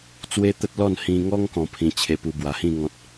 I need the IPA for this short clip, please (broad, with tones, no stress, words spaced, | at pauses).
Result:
t͡swe˦t̪ə˦t̚lɔ˥˧n hĩ˧ŋɔ˦ŋ kɔ̃˧pʰĩ˧t͡ɕʰe˧pu˧ bwa˨˩hĩ˥˧ ŋɔ̃˦t̚